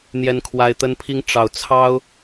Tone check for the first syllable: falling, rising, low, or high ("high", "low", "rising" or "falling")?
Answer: high